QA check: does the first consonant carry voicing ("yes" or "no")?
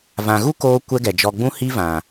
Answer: yes